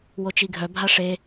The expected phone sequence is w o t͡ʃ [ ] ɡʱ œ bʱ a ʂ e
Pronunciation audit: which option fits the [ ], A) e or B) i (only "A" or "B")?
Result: B